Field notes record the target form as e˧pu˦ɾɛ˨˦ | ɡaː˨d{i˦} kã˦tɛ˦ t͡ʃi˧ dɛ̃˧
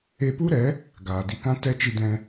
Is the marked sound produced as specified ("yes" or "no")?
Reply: no